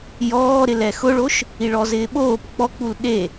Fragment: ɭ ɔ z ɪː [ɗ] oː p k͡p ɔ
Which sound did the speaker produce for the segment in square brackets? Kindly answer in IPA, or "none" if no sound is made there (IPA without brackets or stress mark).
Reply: ɓ